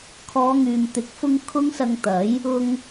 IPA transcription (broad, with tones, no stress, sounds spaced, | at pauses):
kʰ ɔː˨˧ ŋ yː˨ m t̪ ɪ˨˥ k̚ f ʊ˧ ŋ kʰ ʊ˥ ŋ s ɐ˧ ŋ t̪ ɐ˨˥ j | ʊ˧ ŋ